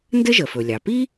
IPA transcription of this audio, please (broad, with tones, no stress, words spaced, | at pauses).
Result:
ndɘ˥ʒə˩fɵ˩ lʲɑ˩pi˥